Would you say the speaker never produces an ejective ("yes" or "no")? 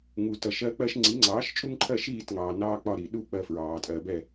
no